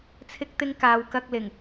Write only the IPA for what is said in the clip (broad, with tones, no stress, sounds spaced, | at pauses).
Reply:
t͡sʰ ɪ˧ k̚ t̪ ɪ˧ ŋ k aː˨ w k ɐ˧ k̚ l ɪ˨˩ ŋ